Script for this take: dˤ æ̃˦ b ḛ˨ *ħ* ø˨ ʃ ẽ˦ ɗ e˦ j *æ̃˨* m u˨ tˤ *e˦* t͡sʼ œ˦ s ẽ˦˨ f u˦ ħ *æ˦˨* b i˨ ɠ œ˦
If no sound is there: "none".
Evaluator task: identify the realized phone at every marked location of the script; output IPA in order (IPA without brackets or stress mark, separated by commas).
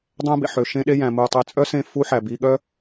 ħ, æ̃˨, e˨, æ˨